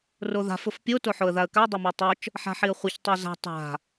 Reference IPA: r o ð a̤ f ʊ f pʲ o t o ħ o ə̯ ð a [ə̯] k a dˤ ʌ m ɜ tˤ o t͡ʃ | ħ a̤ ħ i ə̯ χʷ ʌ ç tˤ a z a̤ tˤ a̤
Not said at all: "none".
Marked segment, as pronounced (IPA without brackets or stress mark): ə̯